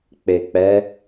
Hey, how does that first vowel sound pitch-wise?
low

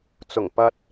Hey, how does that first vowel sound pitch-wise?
low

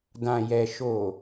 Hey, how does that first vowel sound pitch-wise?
low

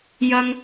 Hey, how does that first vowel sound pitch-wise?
high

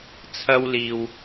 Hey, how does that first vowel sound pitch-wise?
high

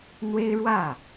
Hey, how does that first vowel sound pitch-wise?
high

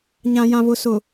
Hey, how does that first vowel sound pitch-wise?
low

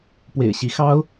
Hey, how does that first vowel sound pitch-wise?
low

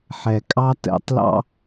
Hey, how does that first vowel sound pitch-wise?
low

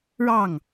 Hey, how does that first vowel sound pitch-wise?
falling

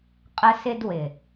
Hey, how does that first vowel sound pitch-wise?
high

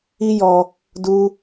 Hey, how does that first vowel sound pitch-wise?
high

